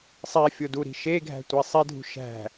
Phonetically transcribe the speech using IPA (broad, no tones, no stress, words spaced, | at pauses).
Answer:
sˤifʲoduɾi̤ ʃeɡʱæ̤tʷe sˤedʱṳ ʃæ̤